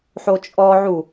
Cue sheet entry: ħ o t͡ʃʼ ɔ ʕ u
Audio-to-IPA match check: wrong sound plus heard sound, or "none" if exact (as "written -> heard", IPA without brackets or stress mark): none